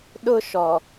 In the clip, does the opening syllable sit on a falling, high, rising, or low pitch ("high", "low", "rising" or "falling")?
high